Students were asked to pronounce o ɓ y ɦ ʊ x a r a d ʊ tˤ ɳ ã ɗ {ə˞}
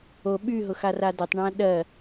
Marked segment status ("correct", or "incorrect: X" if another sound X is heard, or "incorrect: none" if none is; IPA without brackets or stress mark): incorrect: ɜ